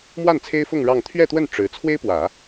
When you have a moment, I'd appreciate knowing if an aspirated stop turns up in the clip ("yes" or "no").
yes